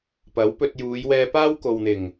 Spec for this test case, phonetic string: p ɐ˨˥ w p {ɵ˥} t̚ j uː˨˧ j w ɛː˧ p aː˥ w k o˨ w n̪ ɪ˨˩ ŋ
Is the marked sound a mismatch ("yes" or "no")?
yes